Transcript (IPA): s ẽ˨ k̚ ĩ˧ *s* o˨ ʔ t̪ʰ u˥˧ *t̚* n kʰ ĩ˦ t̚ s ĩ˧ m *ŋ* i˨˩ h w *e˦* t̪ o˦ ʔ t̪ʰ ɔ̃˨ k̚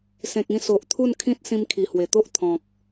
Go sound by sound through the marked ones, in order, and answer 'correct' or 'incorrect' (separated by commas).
correct, incorrect, incorrect, incorrect